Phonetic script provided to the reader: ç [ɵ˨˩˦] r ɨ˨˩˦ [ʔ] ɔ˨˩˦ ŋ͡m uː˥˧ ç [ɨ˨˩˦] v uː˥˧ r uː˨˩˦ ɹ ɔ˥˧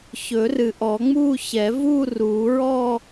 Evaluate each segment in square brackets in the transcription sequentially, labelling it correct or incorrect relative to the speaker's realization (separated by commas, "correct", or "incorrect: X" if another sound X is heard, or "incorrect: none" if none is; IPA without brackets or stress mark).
correct, correct, incorrect: ɛ˨˩˦